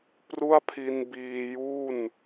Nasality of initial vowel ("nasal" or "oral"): oral